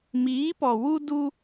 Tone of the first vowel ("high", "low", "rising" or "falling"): rising